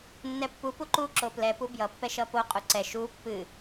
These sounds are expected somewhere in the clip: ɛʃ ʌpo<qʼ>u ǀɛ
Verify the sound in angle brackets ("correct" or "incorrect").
correct